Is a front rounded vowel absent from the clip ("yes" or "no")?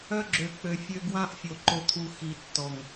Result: no